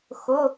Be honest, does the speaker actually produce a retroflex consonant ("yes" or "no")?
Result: no